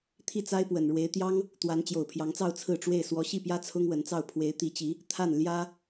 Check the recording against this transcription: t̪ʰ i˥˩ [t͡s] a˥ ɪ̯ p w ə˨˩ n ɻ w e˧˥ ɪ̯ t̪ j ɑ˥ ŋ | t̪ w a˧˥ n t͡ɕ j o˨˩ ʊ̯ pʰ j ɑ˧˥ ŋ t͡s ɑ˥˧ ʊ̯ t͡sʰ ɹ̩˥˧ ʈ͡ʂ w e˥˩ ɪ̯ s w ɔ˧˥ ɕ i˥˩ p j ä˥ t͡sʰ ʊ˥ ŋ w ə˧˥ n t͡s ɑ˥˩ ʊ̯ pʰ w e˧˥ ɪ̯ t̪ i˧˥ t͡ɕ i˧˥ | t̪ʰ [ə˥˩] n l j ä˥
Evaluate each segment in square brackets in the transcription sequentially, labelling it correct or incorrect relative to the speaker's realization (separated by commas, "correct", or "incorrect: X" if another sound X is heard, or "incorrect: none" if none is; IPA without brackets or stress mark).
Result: correct, incorrect: a˥˩